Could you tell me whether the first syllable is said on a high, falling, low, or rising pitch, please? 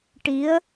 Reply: rising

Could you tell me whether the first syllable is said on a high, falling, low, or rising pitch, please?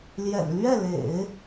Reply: low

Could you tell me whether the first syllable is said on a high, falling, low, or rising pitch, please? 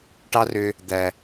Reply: high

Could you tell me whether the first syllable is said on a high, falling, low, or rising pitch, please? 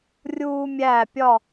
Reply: high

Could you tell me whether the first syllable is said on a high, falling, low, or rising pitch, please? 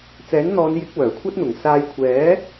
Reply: rising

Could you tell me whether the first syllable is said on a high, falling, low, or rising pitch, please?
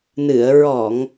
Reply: low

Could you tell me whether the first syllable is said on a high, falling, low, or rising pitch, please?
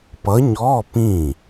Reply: rising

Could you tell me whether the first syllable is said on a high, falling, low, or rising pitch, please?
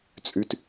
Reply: high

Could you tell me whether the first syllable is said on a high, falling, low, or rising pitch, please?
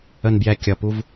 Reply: low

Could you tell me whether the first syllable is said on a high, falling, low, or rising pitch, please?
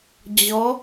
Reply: rising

